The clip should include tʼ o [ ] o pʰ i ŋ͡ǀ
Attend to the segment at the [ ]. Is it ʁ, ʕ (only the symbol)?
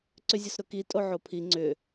ʕ